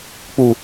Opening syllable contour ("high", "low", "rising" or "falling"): low